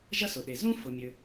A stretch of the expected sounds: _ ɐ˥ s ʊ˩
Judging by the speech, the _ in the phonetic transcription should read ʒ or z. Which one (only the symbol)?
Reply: ʒ